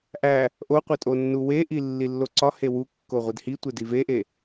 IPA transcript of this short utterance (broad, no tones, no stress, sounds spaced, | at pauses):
ʔ æ | ʔ o qʷ e tʼ o nː u w e ʔ i lː i lː o ǀ ɒ h e w u kː o ʁʷ i d h i tʷ e d i v e ʔ e